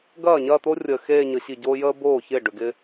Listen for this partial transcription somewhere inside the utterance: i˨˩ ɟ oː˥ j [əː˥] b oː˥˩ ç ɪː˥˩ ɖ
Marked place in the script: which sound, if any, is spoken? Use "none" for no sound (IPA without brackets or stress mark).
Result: əː˥